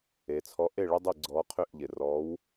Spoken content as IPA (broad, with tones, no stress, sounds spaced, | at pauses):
e˩˧ t͡sʰ ɔ˨˥ ʔ e˥˩ ɭ ɪ˥ dˤ i˥˩ ɡ͡ǀ ɔː˨˥ qʰ ʏ˥˩ ʔ ʎ ɪ˩ r ɔ˨˥ w